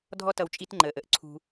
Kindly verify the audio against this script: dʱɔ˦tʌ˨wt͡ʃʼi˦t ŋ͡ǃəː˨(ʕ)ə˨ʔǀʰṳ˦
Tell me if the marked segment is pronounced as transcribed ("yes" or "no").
no